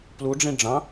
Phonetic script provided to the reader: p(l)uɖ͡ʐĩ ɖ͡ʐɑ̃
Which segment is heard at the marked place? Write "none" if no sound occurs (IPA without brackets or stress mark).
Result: l